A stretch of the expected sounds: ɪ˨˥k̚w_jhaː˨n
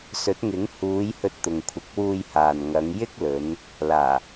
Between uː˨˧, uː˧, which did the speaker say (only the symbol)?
uː˧